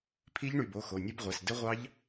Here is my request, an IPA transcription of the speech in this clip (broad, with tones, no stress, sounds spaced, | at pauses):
pʰ i˦˥ ʎ ɳ y˩˧˩ b o˩˧˩ x o˩˧˩ nʲ ɘ˦˥ b ʁʷ ɛ˩˧˩ s d ɘ˦˥ ʁʷ ɑ˦˥ ʎ